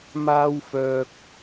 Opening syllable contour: high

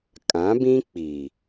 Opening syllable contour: rising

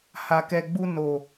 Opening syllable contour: low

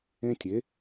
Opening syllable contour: high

